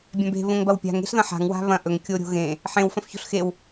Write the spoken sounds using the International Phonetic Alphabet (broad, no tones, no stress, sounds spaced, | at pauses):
bʲ ã b e̤ β õ ŋ b ɐ w pʲ a̤ ŋ e̤ ɬ ð ɐ̃ ħ a̤ ŋ w a̤ β ɐ̃ ʔ ɵ ŋ kʲ o ɾʲ o̤ ɣ ẽ | ħ ẽ w f ɐ̃ f ç o̤ ɬ x e w